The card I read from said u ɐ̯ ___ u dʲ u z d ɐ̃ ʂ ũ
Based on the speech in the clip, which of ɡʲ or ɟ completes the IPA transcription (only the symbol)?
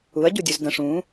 ɟ